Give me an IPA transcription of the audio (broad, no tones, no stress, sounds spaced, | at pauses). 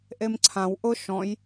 ʔ e m ǀʰ ã w ʔ ʊ ʃ ɔ̃ j